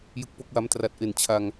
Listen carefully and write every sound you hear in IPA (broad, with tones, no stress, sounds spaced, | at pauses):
j ɯ˦˥ k̚ p o˦˥ k̚ w a˦˥ m t r a˨˩ t̚ ʔ e˨˩ n t͡ɕʰ a˧ ŋ